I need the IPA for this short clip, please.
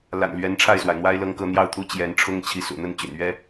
l a̰˨˩ n l ɥ ɛ˧˥ n ʈ͡ʂʰ a˥˩ ɪ̯ s w a˩ ɪ̯ n̪ w a˥ ɪ̯ l ɤ˥˧ ŋ k ɤ˥˧ n̪ j ɑ˥˩ ʊ̯ t̪ʰ u˥ t͡ɕ j ɛ˧˥ n ʈ͡ʂʰ ʊ˥ ŋ t͡ɕʰ i˧˥ s ṵ˨˩ n̪ ə˥˩ n t͡ɕ y̰˨˩ n ɥ ɛ˥

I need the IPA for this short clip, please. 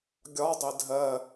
ɡʲ ɒ dˤ ɪ dʱ ɜ

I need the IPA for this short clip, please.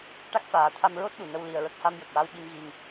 ʈ a˦˥ k̚ f aː˨˩˦ t̪ʰ a˧ m ɹ o˦˥ t̚ ɗ u˨˩˨ n ə˧ w l i˧ ə̯ ɹ ə˦˥ k̚ h a˧ m j ə˨˩ k̚ w a˧ w ɓ i˧ m ɣ i˧ ŋ

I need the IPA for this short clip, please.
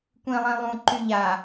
kʷ ĩ lˠ ĩ lˠ ũ ǃ y ʎ a

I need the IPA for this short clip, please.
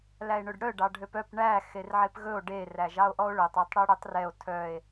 l æ e̯ ɳ ɵ ɖ ɽ œ ɖ ɑ ɖʱ ø p œ p ɳ æ x e r ʕ e p ɣ ɵ o̯ ɖ e r æ ʒ ɑ o̯ ʔ ɔ o̯ ɭ œ tˤ ø tˤ ɽ œ ɽ œ tˤ r ɛ o̯ tʰ œ e̯

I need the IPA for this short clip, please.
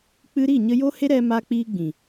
k͡p ɨ˧ ɾ i˦˨ ɲ ə˧ j o˦ h e˦ ɾ ɛ˧ m aː˧ k͡p iː˧ ɡ͡b ĩ˨

